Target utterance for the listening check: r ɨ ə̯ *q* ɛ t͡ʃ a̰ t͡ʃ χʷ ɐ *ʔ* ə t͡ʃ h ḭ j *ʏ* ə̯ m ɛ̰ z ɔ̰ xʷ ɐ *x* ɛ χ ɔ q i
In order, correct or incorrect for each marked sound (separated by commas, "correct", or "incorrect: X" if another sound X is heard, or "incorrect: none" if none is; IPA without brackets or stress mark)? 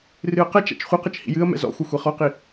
correct, incorrect: q, incorrect: ɨ, incorrect: xʷ